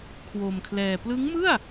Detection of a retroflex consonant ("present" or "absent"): absent